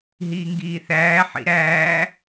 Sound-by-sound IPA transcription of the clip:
ɦ iː ŋ ɡ iː θ æː ħ ḭ ɾ æː

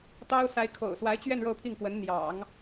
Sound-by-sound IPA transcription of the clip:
t̪ ɑ˥ ʊ̯ s a˧˥ ɪ̯ kʰ o̰˨˩ ʊ̯ s w a˧˥ ɪ̯ t͡ɕ ɥ ɛ˥˧ n ɻ o˥˧ ʊ̯ pʰ i˥˩ ŋ k w ə˧˥ n n̪ j ɑ̰˨˩˦ ŋ

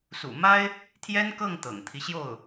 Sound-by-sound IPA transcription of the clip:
s ṵ˨˩ m a˥ ɪ̯ | t̪ʰ j ɛ˥ n k ɤ˥˩ ŋ t̪ ɤ̰˨˩ ŋ t̪ʰ i˦ ɕ j o˥˩ ʊ̯

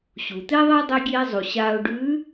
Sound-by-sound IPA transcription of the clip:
ɕ u˩ t̪ e˥ ðˤ e˥ dˤ i˧ ɡʲ eː˧ zˤ u˩ ɕ aː˧ ʊ̯ ɖ ʉː˧˥

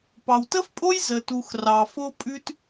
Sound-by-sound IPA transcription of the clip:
p ɑ˩ w t ə˥ f pʼ o˥ j z ə˩ t u˩ x r ɑ˩ f o˥ pʼ ʉ˥ t

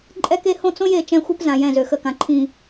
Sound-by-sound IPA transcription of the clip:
ǃʼ ɛ˦ k e˦ h õ˦ t͡s õ˦ j e˦˨ t͡ʃ ɛ̃˦ xʷ e˦ p z ã˨ j ɛ̃˦˨ z ø˨ x ə˦˨ k ã˨ ǃʰ ĩ˨

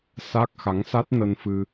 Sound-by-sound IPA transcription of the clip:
s a˦˥ k̚ x a˨˦ ŋ s a˦˥ t̚ n ə˧ n f ɨ˧

